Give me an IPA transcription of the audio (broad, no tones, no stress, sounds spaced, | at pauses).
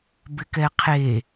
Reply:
b ɪ k ɛ qʰ e